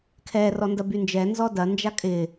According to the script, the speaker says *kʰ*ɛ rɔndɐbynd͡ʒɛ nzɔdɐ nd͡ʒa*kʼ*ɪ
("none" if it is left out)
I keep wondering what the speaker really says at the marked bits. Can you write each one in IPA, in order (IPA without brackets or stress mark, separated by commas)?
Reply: kʰ, kʼ